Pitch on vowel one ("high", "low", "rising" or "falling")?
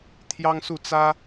high